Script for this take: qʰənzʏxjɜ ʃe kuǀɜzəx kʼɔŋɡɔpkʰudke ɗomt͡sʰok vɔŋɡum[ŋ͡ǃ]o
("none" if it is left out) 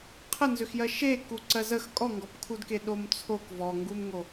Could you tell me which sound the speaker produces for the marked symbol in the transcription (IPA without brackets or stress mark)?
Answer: ŋ